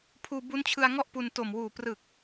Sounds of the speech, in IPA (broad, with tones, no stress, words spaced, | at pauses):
pʰuː˧bu˦˥nt͡ɕʰɯ˧a̯ŋɔ˥˩ʔ pu˧nto˨˩m wuː˨˩prɯ˨˩k̚